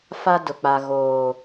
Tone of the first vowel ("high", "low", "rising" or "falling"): high